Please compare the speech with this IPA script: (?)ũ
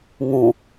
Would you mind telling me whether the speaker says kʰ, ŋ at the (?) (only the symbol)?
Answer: ŋ